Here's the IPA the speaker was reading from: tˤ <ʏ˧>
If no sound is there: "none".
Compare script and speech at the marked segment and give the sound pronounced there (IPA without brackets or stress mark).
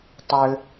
ʏ˧